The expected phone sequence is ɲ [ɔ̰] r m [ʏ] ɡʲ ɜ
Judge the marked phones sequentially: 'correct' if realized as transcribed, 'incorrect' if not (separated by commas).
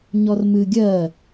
incorrect, incorrect